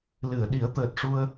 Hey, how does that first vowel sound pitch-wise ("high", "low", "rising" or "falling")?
low